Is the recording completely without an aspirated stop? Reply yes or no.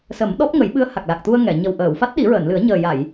yes